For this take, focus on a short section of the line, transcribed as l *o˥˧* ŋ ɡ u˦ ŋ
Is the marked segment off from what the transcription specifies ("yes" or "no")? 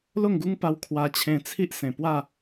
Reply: no